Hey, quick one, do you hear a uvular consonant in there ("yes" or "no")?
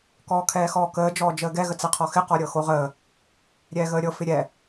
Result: yes